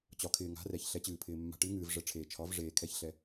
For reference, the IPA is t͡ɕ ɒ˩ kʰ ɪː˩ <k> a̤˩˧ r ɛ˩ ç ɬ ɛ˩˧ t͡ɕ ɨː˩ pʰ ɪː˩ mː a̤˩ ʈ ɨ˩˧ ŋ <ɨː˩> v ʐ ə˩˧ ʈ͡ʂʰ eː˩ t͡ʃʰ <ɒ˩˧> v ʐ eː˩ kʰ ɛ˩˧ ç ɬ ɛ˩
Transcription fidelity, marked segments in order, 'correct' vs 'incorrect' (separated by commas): incorrect, correct, correct